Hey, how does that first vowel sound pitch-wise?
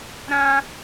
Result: high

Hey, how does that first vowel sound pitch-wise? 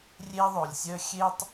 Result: high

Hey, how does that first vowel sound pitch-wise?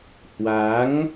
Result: rising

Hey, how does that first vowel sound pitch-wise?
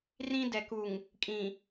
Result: high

